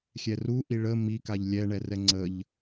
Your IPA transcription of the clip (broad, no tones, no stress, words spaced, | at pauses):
xʲɛruʔi ɭə mikaʎ lʲɛɳɛrɛ ŋ͡ǀəʎ